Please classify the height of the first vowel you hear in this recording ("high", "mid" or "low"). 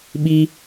high